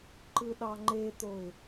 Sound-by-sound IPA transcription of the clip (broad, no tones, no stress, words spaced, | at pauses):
ǃɯɗɑŋ͡ǃet̪oɪ̯